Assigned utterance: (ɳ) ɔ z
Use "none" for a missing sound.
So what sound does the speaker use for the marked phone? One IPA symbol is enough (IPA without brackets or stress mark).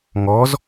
ŋ